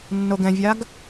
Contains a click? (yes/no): no